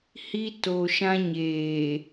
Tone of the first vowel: high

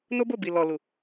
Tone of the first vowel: high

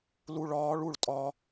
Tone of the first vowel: low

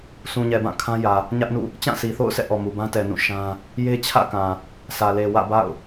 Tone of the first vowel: low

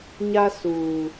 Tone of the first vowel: high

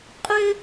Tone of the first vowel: high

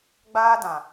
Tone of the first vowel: high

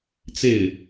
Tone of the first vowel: falling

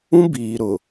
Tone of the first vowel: high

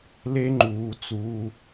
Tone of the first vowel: high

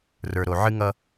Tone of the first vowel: low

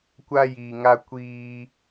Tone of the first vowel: high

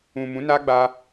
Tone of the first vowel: low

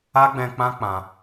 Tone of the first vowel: high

